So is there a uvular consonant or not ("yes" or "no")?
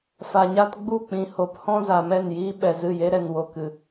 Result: no